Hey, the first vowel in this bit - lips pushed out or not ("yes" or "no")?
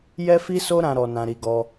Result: no